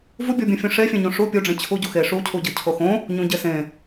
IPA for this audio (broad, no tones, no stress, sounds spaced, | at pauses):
v u bʲ o bʲ ũ fʲ õ ʂ e fʲ ẽ ɲ õ ʂ u pʲ u ɖ͡ʐ ẽ t͡ɕʰ u ɟ u x e ʂ u cʰ u ɟ ɯ cʰ o x õ | ɲ ũ ɟ e s ẽ